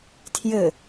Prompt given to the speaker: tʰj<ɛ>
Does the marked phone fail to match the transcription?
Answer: yes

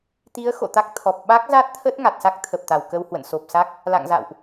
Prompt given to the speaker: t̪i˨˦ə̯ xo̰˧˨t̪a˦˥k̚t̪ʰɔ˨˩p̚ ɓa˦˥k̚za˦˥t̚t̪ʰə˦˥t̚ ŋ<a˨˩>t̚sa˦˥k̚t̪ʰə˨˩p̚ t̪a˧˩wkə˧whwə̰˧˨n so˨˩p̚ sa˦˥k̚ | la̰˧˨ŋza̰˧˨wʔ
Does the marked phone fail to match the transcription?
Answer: no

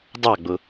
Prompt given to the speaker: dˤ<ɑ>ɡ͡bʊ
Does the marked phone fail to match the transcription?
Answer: no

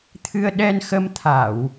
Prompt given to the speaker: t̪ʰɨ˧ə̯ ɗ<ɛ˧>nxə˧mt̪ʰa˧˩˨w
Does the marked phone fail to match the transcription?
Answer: no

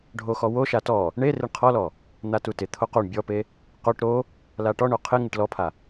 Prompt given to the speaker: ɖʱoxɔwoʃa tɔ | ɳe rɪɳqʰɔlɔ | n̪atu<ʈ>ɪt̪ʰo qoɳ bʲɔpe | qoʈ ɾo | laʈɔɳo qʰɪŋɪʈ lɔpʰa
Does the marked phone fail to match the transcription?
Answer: yes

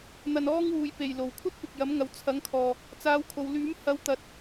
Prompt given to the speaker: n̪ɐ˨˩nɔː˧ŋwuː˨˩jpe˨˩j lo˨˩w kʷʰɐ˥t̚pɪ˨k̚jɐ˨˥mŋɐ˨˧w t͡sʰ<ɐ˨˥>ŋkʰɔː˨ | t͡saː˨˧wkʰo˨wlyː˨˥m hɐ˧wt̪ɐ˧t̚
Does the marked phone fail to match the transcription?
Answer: no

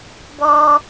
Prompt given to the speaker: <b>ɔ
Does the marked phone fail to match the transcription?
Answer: no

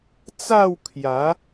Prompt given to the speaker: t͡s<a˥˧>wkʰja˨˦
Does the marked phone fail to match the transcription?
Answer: no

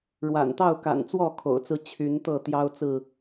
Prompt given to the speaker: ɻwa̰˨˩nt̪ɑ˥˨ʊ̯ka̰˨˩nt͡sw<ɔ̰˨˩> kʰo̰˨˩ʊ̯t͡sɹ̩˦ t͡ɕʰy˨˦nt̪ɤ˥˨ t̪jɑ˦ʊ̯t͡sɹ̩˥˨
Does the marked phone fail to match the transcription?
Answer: yes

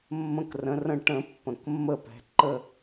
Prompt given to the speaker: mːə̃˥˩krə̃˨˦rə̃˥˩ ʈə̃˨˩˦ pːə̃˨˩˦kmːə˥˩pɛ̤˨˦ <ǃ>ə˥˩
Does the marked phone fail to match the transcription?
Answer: no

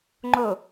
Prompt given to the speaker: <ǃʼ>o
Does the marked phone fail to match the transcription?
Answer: yes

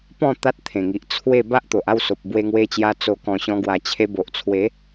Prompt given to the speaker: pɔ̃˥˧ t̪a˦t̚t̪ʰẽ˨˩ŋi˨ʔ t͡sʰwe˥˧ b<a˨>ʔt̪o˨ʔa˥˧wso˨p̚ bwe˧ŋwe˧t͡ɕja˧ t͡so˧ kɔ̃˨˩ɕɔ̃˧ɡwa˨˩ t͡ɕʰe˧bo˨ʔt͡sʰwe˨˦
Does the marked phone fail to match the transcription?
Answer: yes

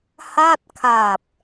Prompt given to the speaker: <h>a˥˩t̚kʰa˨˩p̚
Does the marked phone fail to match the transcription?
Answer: no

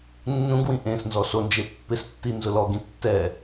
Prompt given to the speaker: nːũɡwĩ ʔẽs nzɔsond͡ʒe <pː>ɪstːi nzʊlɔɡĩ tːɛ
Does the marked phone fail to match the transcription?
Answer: no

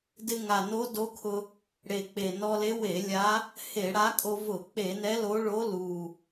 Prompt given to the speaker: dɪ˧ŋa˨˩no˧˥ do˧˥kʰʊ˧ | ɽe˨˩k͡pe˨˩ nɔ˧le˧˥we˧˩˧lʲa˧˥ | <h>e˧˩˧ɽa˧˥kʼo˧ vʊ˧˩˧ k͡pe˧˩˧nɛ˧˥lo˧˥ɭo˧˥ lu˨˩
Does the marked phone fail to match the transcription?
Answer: no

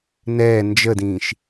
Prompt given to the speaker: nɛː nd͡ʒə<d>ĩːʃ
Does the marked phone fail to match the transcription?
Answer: no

